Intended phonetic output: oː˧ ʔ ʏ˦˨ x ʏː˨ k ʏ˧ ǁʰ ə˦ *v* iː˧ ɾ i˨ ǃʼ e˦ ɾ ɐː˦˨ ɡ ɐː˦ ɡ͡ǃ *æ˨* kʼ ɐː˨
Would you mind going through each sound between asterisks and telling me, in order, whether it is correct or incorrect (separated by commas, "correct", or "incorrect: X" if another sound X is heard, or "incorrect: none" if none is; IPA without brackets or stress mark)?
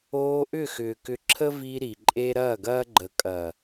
correct, incorrect: ə˨